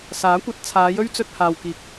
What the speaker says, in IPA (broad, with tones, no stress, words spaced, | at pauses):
saː˨˥kʷɐ˨˥t̚ t͡sʰaː˨˧jɵ˥ɥt͡sɵ˧t̚ haː˨wkiː˨k̚